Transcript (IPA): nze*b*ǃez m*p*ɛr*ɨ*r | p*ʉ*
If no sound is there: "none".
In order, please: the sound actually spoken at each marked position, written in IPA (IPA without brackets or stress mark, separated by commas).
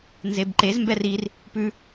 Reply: b, b, i, ʉ